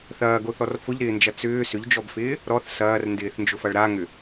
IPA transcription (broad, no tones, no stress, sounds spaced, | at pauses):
θ ɐː ɡ o θ ɔ r f ʊ ʎ ɾ ɪː n d͡ʒ ɐ t͡s ʏː s ʏ ʎ d͡ʒ ɔ b f ɪː | ɾ ɔ θ s ɐː r n d ɪː θ n d͡ʒ ʊ f ɐ ɭ ɾ a ŋ ʏ